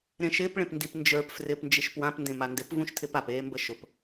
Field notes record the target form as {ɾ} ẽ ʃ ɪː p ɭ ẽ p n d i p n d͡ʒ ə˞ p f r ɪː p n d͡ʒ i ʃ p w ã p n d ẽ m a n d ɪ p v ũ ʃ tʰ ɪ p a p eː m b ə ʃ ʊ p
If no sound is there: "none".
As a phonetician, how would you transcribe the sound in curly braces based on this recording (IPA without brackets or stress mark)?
ɾ